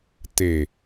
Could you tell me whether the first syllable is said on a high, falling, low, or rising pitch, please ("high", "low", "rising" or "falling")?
low